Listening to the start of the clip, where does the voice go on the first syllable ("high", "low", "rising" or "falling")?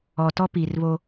low